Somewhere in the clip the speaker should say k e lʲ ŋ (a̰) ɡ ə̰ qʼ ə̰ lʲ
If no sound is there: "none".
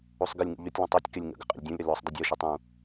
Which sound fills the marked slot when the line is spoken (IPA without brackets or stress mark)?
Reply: ə̰